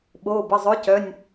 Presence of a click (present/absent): absent